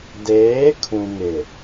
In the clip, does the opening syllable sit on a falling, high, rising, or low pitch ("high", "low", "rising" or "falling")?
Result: rising